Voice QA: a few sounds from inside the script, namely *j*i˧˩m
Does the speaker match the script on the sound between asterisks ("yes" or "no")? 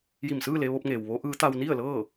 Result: yes